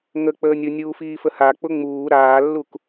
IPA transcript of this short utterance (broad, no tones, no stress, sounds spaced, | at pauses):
ŋ ə k͡p əː nʲ ʊ nʲ uː f iː f ə h a k͡p ʊ ŋ͡m uː ɾ aː lː u k